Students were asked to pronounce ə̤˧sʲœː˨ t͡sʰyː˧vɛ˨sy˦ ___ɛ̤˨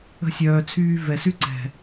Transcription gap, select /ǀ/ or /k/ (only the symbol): ǀ